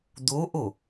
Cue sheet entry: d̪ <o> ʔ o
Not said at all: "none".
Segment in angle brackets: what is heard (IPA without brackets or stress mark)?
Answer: o